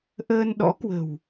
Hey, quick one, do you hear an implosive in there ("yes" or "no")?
yes